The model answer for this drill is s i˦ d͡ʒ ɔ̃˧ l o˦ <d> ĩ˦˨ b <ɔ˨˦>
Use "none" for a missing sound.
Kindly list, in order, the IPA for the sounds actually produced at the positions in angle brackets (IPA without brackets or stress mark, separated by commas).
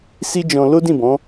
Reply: d, ɔ̃˨˦